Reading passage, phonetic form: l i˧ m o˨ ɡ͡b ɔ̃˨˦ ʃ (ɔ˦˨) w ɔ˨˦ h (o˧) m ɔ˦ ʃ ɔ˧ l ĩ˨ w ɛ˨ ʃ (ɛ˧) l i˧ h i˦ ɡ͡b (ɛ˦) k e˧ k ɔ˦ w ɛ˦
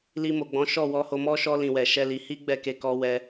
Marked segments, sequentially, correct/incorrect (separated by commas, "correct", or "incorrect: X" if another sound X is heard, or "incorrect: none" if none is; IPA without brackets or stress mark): correct, correct, correct, incorrect: ɛ˦˨